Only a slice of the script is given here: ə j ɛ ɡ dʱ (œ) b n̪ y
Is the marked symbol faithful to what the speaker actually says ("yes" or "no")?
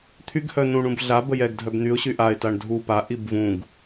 yes